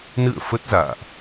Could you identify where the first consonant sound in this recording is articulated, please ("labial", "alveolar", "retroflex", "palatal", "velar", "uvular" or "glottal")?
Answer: alveolar